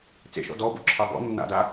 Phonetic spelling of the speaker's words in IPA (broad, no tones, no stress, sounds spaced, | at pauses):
t͡s ḛ ʃ ɔ̰ d ɔ b o̰ ǁʰ ɑ b ɔ̰ nː a̰ d a